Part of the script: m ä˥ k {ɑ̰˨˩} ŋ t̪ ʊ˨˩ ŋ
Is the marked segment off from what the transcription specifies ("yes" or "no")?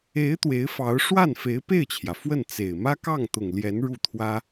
yes